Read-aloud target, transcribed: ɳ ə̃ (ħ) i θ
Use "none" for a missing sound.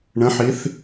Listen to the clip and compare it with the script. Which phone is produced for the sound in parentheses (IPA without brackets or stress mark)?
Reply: ħ